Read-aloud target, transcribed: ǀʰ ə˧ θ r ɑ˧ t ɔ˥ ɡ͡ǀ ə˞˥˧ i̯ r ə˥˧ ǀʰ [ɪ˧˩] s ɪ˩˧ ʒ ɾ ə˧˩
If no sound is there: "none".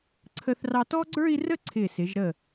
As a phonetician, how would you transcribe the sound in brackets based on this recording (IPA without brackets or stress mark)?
ɪ˧˩